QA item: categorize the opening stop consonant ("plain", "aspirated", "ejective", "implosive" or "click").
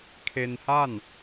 aspirated